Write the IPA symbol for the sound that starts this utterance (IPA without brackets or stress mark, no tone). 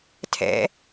tʰ